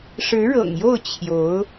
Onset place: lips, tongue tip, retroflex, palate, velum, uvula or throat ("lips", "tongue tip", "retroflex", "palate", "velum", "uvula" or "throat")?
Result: retroflex